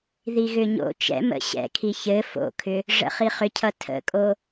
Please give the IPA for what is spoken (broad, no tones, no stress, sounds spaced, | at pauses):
ð i ɣ ʏ ɲ o̰ t͡ʃ ɛ̰ m ə̰ ɕ ɛ̰ kʰ i ç ɘ f o̰ kʰ ʏ | ʐ ə̰ χ i χ ʏ cʰ ʌ tʰ ə̰ kʼ o